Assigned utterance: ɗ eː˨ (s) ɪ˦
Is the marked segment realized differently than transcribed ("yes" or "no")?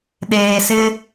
no